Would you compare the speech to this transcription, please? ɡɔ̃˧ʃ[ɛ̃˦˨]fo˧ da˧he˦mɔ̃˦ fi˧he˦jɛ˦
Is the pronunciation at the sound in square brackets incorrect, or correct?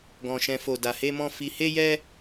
incorrect: ɛ̃˧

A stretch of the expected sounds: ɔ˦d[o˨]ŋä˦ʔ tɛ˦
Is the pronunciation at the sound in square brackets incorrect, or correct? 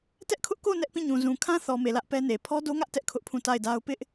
incorrect: o˦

